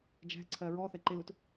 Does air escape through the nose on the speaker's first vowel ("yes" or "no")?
no